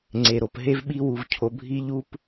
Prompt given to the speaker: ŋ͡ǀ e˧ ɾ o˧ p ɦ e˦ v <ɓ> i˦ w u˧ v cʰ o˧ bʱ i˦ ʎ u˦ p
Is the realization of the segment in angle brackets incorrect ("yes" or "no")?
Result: no